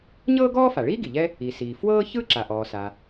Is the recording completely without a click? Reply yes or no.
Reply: no